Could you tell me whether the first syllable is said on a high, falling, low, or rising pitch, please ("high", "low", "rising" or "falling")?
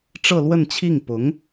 falling